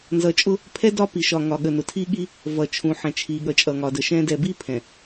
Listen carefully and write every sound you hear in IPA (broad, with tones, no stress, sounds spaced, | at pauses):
n z ʌ˨ t͡ʃʼ ʊ˦ | pʰ ɛ˦ d ɒ˦ p i˨ ʃ ɒ˨ ŋ ɒ˨ ɠ ə˨ n ʊ˨ tʰ i˦ ɠ i˦ | v ʌ˨ t͡ʃʰ ũ˨ ħ ɛ̃˨ t͡ʃʰ i˨ ɠ ʌ˨ t͡ʃʼ ʌ˨ ŋ ɒ˨ d ə˨ ʃ ɛ̃˦ d ɛ˦˨ b i˦ pʰ ɛ̃˨